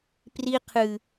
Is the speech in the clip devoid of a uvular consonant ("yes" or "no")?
no